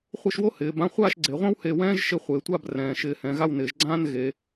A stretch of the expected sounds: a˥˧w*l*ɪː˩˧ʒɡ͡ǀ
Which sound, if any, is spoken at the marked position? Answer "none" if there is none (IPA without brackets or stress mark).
n